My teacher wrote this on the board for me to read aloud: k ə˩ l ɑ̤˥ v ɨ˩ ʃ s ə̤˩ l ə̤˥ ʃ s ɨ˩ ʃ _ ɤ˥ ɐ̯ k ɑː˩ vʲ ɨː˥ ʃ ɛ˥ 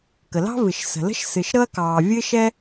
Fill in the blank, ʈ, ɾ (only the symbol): ɾ